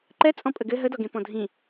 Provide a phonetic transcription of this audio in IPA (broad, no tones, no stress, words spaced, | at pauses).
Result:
ǃɛ t͡sʼɔ̃pʼəɡɘ ɦədɔɡẽ pɔ̃dʱĩ